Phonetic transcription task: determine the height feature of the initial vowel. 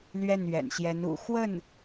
mid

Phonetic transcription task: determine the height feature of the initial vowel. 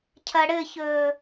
low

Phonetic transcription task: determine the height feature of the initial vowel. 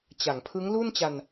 low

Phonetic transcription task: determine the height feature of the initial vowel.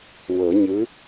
mid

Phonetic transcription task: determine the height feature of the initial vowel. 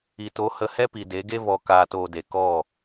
high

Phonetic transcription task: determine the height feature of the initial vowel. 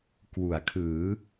high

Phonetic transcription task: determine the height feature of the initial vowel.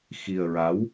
high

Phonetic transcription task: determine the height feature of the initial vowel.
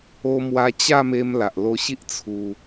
mid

